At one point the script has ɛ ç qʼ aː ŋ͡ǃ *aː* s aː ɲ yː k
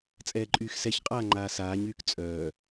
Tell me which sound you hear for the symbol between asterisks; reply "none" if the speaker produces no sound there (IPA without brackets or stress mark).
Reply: aː